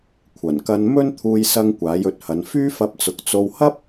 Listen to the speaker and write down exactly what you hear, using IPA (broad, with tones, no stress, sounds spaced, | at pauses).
kʷʰ ɐ˨˩ n k ɐ˧ n m ɵ˥ n t̪ʰ uː˧ j s ɐ˧ ŋ kʷ aː˨˥ j ɵ˨ t̚ h ɐ˨˧ n f yː˥ f ɐ˧ p̚ t͡s ʊ˨ k̚ t͡s o˧ w h ɐ˥ p̚